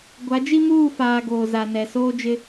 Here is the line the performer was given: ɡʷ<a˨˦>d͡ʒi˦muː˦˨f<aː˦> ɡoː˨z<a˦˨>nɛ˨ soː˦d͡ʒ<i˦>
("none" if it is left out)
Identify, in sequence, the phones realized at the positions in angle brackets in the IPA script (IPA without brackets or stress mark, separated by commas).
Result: a˨˦, aː˨, a˨, ɪ˦